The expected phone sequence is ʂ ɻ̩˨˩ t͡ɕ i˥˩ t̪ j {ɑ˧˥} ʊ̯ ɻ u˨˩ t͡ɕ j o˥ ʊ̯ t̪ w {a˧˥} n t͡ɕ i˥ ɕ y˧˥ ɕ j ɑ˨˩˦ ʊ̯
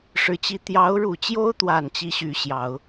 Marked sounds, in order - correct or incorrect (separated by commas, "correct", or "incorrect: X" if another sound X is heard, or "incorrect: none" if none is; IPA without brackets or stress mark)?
correct, incorrect: a˨˩